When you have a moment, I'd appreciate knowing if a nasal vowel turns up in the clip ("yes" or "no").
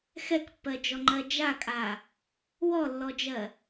no